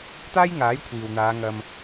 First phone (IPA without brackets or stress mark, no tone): t̪